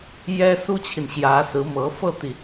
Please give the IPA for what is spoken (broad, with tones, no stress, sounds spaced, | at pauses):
j ɛ˥ s u˥ t͡ɕʰ i˨ n ɕ j ä˧˥ s ɹ̩˧˥ m ɤ˧˥ f ɤ˥˩ t̪ i˩